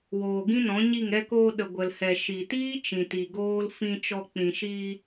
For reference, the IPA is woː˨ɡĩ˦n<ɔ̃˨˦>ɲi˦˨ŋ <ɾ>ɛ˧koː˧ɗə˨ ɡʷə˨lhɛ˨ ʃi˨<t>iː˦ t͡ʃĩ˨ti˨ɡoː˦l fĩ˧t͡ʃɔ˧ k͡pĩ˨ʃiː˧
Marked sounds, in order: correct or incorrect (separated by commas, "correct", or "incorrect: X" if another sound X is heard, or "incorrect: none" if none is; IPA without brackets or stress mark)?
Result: correct, correct, correct